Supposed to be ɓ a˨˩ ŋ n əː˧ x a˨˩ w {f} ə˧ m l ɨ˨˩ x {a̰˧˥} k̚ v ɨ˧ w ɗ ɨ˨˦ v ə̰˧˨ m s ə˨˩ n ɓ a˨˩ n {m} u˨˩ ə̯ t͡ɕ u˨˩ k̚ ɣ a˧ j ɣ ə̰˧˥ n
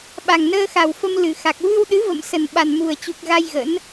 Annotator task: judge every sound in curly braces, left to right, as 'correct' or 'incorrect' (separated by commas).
correct, incorrect, correct